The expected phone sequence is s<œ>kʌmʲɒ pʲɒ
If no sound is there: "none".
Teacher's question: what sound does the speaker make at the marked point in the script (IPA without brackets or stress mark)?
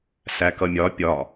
æ